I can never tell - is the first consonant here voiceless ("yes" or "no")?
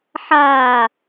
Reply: yes